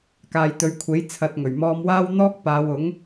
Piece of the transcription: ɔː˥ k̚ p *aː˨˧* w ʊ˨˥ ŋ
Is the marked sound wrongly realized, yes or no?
no